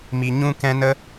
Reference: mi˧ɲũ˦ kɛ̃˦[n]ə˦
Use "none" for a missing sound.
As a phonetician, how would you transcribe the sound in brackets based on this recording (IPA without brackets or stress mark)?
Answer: n